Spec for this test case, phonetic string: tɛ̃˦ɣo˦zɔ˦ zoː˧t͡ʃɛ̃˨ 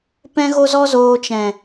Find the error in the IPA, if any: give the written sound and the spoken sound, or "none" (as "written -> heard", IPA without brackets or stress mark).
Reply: t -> p